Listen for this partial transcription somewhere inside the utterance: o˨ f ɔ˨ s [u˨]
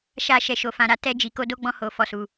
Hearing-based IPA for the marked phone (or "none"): u˨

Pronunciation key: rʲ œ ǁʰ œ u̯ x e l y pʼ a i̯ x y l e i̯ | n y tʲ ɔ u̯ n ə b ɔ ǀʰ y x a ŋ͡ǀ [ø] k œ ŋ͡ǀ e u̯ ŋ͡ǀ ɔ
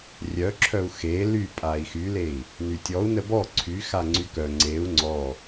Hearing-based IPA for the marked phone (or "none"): y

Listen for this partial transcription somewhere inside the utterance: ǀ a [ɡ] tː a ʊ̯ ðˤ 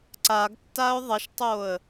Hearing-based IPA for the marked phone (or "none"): ɡ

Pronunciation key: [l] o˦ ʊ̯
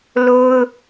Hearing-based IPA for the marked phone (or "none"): l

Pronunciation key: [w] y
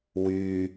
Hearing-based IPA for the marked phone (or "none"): w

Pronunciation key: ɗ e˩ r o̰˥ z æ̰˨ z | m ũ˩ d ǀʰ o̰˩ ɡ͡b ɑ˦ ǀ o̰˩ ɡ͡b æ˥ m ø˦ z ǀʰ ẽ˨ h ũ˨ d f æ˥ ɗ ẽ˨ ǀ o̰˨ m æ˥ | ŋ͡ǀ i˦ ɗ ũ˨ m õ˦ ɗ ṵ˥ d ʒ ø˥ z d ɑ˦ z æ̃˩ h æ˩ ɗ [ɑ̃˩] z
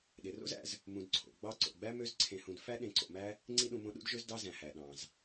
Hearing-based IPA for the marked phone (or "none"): ɑ̃˩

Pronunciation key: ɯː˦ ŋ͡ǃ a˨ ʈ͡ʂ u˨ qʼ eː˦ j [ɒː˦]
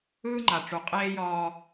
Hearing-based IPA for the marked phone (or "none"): ɒː˦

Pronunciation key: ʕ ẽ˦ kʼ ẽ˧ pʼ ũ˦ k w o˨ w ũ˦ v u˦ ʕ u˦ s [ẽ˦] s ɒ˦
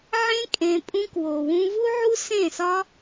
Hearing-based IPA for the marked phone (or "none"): ẽ˦˨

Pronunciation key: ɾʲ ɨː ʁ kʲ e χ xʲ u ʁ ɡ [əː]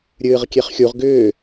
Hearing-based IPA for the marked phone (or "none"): ʏː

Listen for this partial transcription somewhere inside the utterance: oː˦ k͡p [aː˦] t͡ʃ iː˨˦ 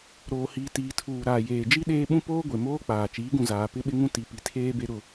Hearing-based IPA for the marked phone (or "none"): aː˨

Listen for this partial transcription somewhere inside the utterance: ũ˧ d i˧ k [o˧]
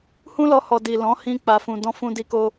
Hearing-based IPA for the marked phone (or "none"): o˧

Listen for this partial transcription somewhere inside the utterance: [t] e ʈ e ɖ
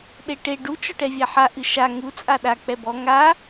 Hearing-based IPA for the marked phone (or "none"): ɗ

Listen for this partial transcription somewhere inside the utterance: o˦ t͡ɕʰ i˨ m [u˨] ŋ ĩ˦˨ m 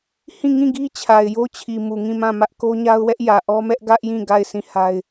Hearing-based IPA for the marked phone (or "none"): u˨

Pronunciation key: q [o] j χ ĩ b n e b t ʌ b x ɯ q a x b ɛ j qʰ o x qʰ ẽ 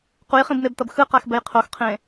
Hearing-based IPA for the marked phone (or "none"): u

